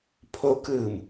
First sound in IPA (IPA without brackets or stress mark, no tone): pʰ